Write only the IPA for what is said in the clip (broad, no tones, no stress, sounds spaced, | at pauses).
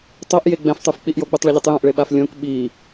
tˤ o ʔ j e ɡ͡b ɛ̃ f tˤ u f k͡p i ʔ j o ɡ͡b u tˤ ɭ ɛ ʎ u tˤ j õ ʔ ɭ e ɓ a f lʲ õ k ɓ i